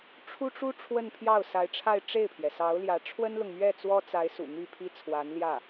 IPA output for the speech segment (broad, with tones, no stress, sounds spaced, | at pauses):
ʈ͡ʂʰ u˥ ʈ͡ʂ u˥ ʈ͡ʂʰ w ə˥˧ n pʰ j ɑ˥˩ ʊ̯ s a˧˥ ɪ̯ ʈ͡ʂʰ a˥˧ ɪ̯ ʈ͡ʂ e˥˩ ɪ̯ pʰ j ɛ˩ s ɑ˧˥ ʊ̯ l j ä˧˥ ʈ͡ʂʰ w ə˥ n l ʊ˨ ŋ m ɥ ɛ˥˩ t͡s w ɔ˥ t͡s a˧˥ ɪ̯ s ṵ˨˩ n̪ y˥˩ pʰ i˥ t͡sʰ w a˧˥ n l j ä˥˩